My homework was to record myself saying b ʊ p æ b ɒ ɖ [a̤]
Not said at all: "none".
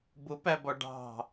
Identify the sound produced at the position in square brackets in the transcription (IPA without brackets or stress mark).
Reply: ɑ̤